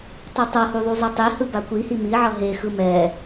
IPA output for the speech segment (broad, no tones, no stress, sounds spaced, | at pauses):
tˤ u tˤ ʌ h u ðˤ u zˤ ɛ tˤ e h ɯ b a kʷ i h i m i ʕ ʌ ɦ e x ɯ m ɛ